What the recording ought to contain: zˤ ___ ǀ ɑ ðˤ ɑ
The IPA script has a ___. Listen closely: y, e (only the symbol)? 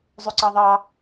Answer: y